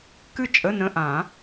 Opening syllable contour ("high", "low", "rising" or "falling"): falling